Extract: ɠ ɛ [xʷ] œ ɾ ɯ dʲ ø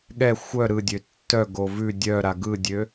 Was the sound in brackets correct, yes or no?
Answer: yes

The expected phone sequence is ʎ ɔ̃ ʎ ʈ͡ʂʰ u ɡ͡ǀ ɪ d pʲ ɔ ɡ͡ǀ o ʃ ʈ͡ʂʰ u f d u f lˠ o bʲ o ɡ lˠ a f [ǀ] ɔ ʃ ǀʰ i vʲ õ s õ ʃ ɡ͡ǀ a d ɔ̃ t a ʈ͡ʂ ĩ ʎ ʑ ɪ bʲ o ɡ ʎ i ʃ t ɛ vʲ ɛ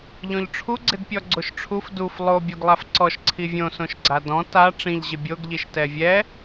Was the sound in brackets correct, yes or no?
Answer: yes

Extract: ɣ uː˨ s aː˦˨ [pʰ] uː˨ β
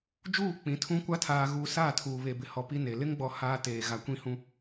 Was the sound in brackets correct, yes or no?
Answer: no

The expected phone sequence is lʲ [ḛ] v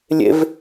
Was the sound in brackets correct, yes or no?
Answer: yes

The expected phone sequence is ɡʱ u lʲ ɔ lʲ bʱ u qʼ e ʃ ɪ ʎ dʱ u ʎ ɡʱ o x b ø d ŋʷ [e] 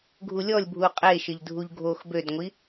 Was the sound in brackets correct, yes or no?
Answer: no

